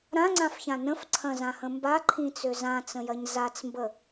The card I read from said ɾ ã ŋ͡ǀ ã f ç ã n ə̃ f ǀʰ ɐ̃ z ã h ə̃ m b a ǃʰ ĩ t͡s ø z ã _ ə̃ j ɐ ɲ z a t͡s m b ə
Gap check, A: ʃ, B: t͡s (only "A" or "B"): B